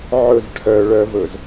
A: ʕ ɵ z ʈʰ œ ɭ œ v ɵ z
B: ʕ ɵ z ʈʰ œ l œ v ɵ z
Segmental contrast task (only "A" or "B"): A